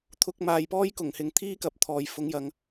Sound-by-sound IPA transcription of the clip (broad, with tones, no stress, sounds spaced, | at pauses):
t̪ʰ ʊ˧ k̚ m aː˨ j p ɔː˥ j k ʊ˨˩ ŋ h ɪ˨ ŋ t̪ʰ iː˥ k ɐ˨ p̚ t̪ʰ ɔː˨ j f ʊ˨˧ ŋ j ɐ˨ ŋ